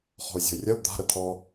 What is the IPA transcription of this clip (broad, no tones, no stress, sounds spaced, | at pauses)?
χ ɔ̤ u̯ zʲ ɔ̤ y̯ rʲ ɐ u̯ d̪ a̤ ɾ ə t̪ʰ ɔ